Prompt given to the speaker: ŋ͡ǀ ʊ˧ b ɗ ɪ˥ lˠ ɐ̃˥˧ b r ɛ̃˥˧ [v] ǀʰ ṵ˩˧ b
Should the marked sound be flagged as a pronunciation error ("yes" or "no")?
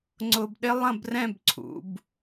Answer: yes